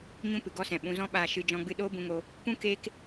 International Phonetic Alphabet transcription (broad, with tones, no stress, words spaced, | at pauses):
ɲũ˦pɨ˨ ɡɔ˦sɛ̃˨ ɓũ˧zɔ̃˦ ɓaː˧ʃɨ˧ d͡ʒɔ̃˧ɡ͡bɨ˧ ɗoː˦bũ˧ŋo˧ | pũ˦ keː˦k